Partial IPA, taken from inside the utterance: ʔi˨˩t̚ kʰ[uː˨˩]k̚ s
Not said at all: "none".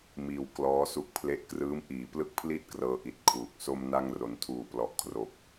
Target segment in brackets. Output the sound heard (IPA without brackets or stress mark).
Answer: uː˨˩